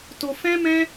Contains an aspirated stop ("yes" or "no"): no